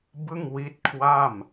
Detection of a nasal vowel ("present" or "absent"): absent